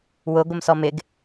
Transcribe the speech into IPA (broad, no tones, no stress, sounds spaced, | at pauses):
w ʊ ɡʷ ə m s ɔ m ɪ ɡ